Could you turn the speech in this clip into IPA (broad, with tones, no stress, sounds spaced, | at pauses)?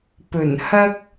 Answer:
p ɵ˨˩ n h ɐ˥ k̚